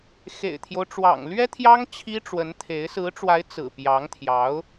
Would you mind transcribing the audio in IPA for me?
x ḛ˨˩ ɪ̯ t̪ʰ j o˦ ʊ̯ ʈ͡ʂ w ɑ̰˨˩ ŋ l ɥ ɛ˥ t̪ʰ j ɑ˥ ŋ t͡ɕʰ i˥ ʈ͡ʂ w ə˧˥ n t̪ʰ e˧˥ ɪ̯ s ɹ̩˧˥ ʈ͡ʂ w a˧˥ ɪ̯ t͡s ɹ̩˨˩ p j ɑ˧˥ ŋ t̪ʰ j ɑ˧˥ ʊ̯

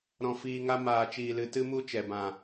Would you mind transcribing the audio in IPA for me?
ɾ ɔ̃˨ f iː˨ ŋ a˧ m aː˨ t͡ʃ iː˨ l ɨ˨ t ɨ˦ m u˦ t͡ʃ ɛ˨ b ã˨

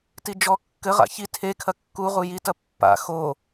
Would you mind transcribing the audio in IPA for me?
t i d͡ʒ ɔ kː ɘ ʁ a̰ ç i tʰ e kʰ ɐ kː u ʁ u j i t ɐ pː a̰ x o

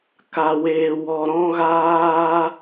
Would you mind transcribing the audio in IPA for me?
k a˧ w eː˧ w ɔ˧ ɾ ɔ̃˦ ɣ aː˦

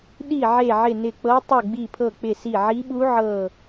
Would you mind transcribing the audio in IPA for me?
ɗ i˦˨ ʕ e˦˨ ʕ ɪ˦˨ n ɪ˦˨ k͡p ɤ˦˥ tˤ u˦˨ ɡ͡b i˦˨ pʰ ɤ˦˨ k͡p ɪ˦˨ s i˦˨ ʕ i˦˥ ɓ u˦˥ ʕ ɤ˦˨

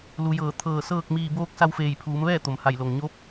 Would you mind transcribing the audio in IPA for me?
l u˩˧ j ɤː˧˩ t̪ʰ ɤː˧˩ s ɤː˥˨ k̚ m iː˧˩ b oː˧ k̚ s a˧ w f eː˧˩ j pʰ uː˩˧ m ʋ ɛː˥˨ t̪ o˩ m h a˧˩ j l o˩ ŋ ɲ o˧˥ p̚

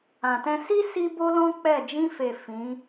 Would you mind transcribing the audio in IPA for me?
ã˨ t ɛ̃˧ s i˦ s i˦ b o˦ l ɔ̃˦ k͡p ɛ˦˨ d͡ʒ ĩ˧ f e˨ f ĩ˨˦

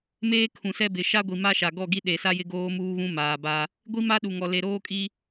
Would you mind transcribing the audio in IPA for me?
m eː˦ kʰ ũ˨ s ɛ˦ b ɪ˨ ʃ a˦ ɡʷ i˨ m a˦ ʃ a˨ ɡ ɔ˦˨ ɡ i˦ ɗ e˨ s a˦ j ɪ˦ ɡ oː˦ m uː˦ β ũ˦ m aː˨ b a˦ | ɡʷ i˦ m a˦ ɗ u˨ ŋ ɔ˨ l e˨ ɾ oː˦ kʼ i˦

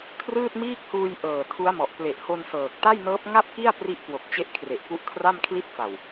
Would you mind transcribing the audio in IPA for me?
kʰ r ɯː˥˩ t̚ m iː˥˩ k̚ h uː˧ j ʔ ɤː˨˩ tʰ u˦˥ a̯ m ɔ˨˩ ʔ p l e˨˩ ʔ h o˧ n s ɤː˨˩ k̚ t a˥˩ j n ɤː˦˥ p̚ ŋ a˥˩ p̚ k i˥˩ a̯ p r i˦˥ ʔ k w o˨˩ k̚ t͡ɕ e˦˥ ʔ kʰ r e˨˩ ʔ k u˦˥ ʔ kʰ r a˥˩ m kʰ l i˥˩ t̚ f a˨˩ w

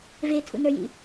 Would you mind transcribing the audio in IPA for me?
v e tʰ ṵ n ə˞ j ḭ

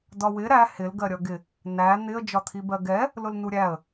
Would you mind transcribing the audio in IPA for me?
d ɒ w ɪ ɾ æ h ɪ l ɡ ɜ ɾʲ ʌ ɡ ɪ | n æ n̪ ɪ ə̯ d͡ʒ ɒ t̪ʰ i b ɜ ɡ ɛ | l ʊ l n u ɾʲ æ ə̯

